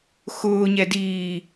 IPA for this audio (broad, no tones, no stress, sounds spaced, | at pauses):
x ʊː ɲ ɛ d iː